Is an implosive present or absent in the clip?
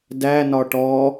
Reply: absent